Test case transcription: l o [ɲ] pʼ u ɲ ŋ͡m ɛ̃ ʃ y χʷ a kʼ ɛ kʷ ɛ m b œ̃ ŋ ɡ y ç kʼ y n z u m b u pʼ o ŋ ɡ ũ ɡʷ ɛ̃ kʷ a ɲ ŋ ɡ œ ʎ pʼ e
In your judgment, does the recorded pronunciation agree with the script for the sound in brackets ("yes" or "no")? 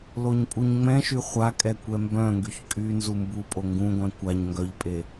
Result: yes